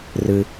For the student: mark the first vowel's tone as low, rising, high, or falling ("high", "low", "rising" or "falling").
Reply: low